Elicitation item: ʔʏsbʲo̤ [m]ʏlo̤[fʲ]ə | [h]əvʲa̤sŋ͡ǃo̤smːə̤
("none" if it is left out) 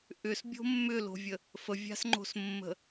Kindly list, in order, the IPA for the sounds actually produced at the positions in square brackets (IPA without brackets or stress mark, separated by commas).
mː, vʲ, f